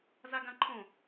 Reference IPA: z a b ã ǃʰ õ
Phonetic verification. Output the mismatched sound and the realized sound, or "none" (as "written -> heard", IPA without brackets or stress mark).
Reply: b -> ɡ